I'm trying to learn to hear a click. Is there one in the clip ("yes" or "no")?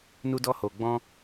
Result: no